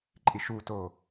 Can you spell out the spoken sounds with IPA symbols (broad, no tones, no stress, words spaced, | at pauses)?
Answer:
ǃʼiʃuto